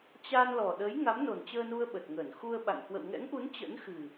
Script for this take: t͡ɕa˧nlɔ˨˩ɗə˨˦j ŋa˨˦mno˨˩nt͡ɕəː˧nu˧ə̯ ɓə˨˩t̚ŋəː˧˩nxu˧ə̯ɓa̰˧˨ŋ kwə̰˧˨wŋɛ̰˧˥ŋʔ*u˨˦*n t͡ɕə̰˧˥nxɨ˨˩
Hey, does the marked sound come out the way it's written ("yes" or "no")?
yes